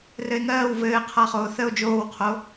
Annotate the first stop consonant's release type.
aspirated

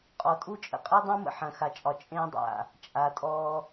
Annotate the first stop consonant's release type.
ejective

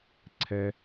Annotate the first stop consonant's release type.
click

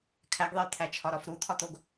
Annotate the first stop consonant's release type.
aspirated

